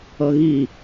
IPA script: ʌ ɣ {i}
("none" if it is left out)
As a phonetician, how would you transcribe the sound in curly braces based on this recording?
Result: i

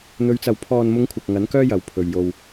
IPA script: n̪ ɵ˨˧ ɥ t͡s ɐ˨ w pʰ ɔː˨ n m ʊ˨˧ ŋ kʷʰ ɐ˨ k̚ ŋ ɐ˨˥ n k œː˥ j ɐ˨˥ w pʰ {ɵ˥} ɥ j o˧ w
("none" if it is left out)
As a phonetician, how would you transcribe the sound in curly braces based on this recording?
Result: ɵ˨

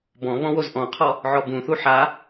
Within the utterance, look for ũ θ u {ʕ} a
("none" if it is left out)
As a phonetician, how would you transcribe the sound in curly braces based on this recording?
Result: ħ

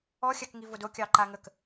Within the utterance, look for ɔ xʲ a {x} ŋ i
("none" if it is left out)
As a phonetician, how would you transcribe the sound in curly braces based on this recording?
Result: k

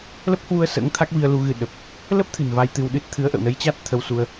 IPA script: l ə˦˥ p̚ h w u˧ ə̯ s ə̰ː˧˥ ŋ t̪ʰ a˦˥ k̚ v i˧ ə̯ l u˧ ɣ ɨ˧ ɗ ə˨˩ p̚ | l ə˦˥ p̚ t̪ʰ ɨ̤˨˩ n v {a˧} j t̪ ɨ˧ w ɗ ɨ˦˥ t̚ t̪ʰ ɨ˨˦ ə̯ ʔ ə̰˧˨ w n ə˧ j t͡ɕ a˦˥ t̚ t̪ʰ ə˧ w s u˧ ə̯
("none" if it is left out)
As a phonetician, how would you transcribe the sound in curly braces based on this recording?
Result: a˧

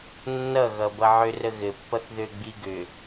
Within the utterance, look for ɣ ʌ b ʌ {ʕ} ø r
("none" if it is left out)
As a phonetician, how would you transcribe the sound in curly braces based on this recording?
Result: ʕ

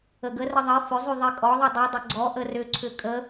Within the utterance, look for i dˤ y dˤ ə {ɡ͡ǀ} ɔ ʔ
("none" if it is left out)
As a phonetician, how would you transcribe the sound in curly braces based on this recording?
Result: ɡ͡ǀ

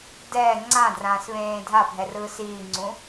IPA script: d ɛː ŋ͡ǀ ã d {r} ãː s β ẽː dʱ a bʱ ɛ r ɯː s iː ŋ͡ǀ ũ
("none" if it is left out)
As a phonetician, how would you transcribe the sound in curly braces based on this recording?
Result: r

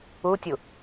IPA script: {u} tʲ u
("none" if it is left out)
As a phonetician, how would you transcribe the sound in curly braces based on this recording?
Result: u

